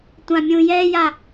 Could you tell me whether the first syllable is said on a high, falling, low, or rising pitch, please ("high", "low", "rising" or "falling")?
high